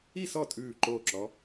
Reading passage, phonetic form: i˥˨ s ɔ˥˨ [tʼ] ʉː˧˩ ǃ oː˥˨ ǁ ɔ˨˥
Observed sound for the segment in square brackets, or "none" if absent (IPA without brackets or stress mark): tʼ